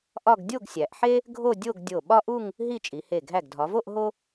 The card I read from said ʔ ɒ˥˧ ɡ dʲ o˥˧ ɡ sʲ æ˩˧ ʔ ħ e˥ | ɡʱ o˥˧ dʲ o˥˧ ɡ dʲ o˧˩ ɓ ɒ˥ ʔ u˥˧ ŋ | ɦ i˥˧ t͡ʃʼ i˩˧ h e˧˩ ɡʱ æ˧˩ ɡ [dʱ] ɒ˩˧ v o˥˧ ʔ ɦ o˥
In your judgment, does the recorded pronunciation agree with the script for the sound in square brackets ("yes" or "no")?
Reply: yes